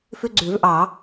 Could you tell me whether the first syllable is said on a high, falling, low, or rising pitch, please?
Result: high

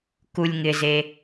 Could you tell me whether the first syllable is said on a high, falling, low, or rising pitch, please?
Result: low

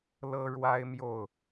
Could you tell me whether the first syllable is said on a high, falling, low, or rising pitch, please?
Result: high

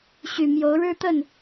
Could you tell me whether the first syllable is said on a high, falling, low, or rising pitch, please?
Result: low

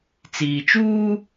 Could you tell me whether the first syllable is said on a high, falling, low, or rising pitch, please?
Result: low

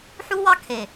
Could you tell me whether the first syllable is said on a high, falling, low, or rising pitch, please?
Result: high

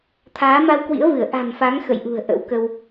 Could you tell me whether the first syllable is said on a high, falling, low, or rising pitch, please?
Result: rising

